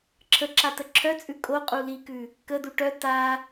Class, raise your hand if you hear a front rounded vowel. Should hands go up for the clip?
yes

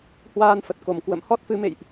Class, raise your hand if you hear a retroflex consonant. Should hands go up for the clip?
no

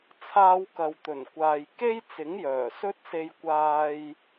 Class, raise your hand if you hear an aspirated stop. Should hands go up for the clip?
yes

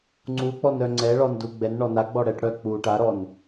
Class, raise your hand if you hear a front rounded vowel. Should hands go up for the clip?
yes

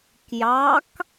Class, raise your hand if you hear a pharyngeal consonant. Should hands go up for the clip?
no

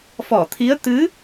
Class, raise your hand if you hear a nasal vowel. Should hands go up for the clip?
no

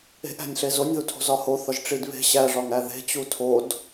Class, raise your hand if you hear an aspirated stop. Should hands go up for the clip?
yes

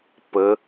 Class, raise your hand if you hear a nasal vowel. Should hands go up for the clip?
no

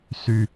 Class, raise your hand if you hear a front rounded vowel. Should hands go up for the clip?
yes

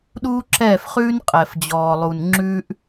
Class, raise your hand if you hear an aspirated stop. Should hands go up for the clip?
no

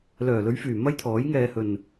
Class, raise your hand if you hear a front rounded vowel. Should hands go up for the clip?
yes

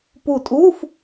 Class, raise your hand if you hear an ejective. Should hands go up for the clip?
yes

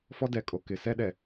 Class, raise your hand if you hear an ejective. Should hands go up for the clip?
yes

